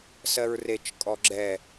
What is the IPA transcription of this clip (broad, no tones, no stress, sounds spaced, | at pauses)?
s ɜ ɹ r e t͡ʃ kʼ ɔ ɡ͡ǁ ɛ